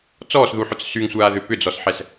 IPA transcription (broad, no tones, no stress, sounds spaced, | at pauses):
t͡s ɔː s ð u ħ ʊ t͡s s y ŋ sʷ aː ð ʏ p ʏ d͡z ɔ s ħ ɛ s